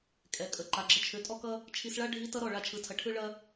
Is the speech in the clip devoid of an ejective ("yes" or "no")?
no